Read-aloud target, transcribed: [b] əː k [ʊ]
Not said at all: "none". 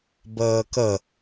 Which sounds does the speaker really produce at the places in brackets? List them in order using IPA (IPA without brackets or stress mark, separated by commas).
b, ə